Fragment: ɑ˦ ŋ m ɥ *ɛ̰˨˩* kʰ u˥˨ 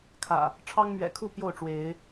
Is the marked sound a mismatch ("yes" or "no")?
no